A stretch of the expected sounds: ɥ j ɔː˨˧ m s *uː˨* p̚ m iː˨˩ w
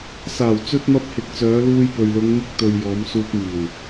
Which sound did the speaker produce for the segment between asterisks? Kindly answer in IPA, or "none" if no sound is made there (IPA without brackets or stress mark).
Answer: uː˧